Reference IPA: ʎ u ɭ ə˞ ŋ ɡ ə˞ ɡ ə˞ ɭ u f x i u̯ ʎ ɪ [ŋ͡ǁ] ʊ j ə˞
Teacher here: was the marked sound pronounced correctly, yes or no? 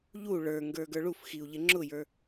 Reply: yes